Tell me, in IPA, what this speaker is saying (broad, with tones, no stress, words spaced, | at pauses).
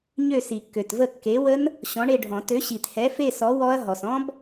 ɲø˦˨si˨˩˦kːø˨tvə˦˨ kːe˨˥wə˦˥n | ɕɔ̃˨˥ɳe˦˨ɖʱɔ̃˨˩˦ tø˨˥ɕi˨thɛ˨˥ fe˦˨sɔ˨˥ wɔ˦˥ɐ̯ɦɔ˨s ɔ̃˦˥b